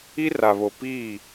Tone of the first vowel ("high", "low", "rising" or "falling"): high